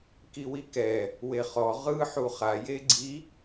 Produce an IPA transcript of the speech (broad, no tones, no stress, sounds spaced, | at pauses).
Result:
k i w i k ɛ | w e χ ɔ ʁ ɯ ħ u χ a j e ɡ͡ǀ i